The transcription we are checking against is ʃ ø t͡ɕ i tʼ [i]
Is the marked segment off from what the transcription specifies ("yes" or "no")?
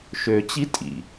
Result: yes